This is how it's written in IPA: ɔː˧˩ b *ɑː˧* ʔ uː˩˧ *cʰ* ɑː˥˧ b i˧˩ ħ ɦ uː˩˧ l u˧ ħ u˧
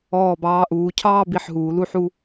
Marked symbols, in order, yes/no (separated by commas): yes, yes